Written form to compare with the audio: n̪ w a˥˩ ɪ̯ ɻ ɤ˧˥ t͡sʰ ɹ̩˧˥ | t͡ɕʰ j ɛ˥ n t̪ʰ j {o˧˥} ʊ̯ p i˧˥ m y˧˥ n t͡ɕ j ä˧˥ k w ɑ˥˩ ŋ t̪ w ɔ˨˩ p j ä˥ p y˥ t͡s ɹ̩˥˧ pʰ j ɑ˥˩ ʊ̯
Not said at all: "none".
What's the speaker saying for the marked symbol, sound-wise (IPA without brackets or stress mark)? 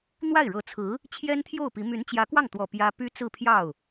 o˥˩